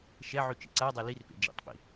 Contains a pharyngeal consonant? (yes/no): yes